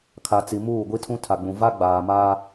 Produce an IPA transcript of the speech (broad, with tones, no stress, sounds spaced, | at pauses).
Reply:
kʰ a˨ t͡s i˨ m uː˦˨ ɡʷ i˦ tʰ ũ˦ tʰ a˨ ɡ͡b ũ˨ v a˦ ɡ͡b aː˨ m aː˦